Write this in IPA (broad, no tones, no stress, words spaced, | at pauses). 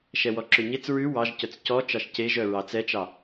ʃɛwɔǁøɲet͡s ɹʉ wɑʒcœt͡s cɔ t͡ʃɑʃceʒœ ɹɑt͡sɛt͡ʃɑ